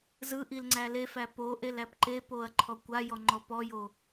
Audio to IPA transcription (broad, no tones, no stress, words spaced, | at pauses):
zɯʔil ŋ͡ǀælefæ poʔel æpǃepoɐ̯ ǃʰɔkʷajɔ ŋ͡ǃɔpɔjo